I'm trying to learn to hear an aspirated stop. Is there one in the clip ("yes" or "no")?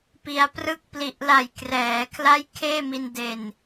yes